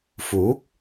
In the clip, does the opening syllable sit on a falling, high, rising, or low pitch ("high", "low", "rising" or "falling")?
rising